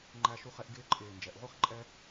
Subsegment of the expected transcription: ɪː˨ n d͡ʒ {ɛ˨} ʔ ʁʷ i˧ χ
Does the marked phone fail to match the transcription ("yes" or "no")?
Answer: no